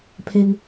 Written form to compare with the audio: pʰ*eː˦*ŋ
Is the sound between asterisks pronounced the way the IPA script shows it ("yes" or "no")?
no